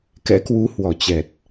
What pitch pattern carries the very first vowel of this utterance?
rising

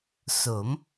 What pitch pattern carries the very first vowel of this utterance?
rising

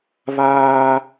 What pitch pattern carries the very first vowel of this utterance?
high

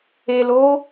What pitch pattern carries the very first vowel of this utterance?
low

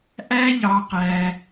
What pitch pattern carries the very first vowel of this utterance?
high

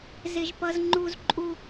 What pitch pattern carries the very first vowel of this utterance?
high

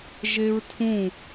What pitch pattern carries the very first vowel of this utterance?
high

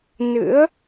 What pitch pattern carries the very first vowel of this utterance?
rising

